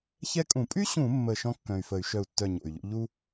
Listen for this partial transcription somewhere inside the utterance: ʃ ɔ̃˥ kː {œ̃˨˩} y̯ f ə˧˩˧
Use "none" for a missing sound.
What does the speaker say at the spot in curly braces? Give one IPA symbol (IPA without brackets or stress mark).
œ̃˨˩